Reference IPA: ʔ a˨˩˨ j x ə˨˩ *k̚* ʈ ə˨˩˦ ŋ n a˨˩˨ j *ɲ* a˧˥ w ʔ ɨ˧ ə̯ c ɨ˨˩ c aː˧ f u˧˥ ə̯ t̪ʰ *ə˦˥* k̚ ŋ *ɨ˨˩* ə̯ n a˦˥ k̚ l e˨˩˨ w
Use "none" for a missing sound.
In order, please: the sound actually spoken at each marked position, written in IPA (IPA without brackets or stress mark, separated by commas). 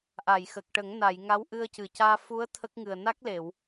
k̚, ŋ, ə˦˥, ɨ˨˩